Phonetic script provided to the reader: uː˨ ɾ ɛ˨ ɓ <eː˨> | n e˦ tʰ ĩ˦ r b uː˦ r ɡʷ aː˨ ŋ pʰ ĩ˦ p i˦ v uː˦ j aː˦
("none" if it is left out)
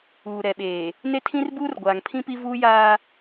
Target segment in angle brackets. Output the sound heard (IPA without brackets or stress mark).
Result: eː˨